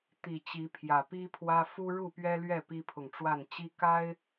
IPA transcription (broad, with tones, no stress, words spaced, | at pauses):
t̪i˨˩t͡ɕi˨˦pʰjä˨˩ pi˦pʰwä˦ fu˦ɻu˥˨pɥɛ˦lɥɛ˥˨ pi˦pʰʊ˨ŋʈ͡ʂwa˥˨n t͡ɕi˦ka˦ɪ̯